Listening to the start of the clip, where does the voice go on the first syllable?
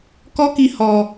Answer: high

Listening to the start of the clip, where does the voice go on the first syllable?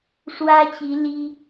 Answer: high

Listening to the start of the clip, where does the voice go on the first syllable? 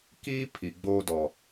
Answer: high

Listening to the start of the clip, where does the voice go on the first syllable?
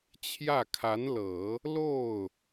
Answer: falling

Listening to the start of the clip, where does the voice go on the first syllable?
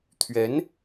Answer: rising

